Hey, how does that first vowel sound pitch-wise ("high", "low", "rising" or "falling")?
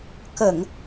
low